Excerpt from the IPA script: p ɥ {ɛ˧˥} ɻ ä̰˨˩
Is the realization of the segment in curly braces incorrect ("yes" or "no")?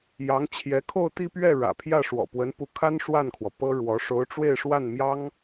yes